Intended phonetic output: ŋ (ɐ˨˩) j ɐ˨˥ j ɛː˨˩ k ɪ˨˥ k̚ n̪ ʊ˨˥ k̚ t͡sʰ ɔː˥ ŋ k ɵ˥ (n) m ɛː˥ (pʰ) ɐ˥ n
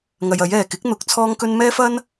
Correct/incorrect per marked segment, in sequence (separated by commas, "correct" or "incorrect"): incorrect, correct, incorrect